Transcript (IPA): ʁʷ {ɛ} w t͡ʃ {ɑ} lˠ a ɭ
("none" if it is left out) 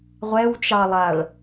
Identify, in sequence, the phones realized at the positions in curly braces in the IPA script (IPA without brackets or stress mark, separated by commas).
ɛ, ɑ